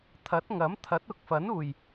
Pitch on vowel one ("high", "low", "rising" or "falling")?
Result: rising